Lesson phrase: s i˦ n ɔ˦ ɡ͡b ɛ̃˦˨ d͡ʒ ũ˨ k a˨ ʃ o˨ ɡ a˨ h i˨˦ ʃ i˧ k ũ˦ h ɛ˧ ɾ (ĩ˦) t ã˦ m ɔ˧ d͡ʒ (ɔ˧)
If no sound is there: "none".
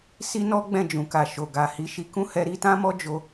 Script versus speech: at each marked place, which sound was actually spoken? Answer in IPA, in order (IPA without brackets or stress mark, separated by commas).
i˦, o˧